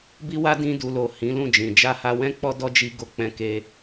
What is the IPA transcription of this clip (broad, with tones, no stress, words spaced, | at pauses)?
bi˦wa˦ dĩ˧du˨lo˨ hĩ˨˦lũ˦˨d͡ʒĩ˨ d͡ʒa˧ha˧wɛ̃˦ k͡pɔ˦dɔ˦d͡ʒi˧ɡo˧ k͡pɛ̃˧ke˧